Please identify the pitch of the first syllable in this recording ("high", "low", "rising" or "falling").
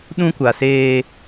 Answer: high